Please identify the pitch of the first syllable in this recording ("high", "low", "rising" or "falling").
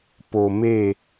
low